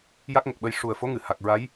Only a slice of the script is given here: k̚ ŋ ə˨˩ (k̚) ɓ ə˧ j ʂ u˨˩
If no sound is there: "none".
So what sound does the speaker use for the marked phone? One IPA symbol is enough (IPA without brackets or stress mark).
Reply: k̚